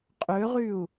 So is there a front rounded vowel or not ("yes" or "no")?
yes